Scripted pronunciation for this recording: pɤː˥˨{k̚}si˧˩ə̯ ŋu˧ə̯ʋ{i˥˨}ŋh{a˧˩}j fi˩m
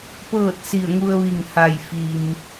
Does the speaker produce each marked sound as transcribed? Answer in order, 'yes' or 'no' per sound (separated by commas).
no, no, yes